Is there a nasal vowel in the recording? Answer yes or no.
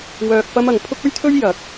no